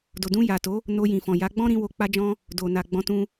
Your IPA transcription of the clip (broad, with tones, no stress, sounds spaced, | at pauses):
d o˨ d ũ˧ j a˨ t o˨˦ | n o˧ j ĩ˨ f ɔ̃˨ j a˨˦ ɡ͡b ɔ̃˦ ɾ ĩ˦ w o˧ k͡p a˦ d͡ʒ ɔ̃˦ | d o˨ n a˨ ɡ͡b ɔ̃˨˦ t ũ˧